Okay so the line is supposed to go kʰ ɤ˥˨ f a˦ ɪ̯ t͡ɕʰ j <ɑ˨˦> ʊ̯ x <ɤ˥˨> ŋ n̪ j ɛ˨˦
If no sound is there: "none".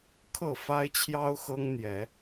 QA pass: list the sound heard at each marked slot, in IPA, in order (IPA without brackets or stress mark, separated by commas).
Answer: ɑ˦, ɤ˦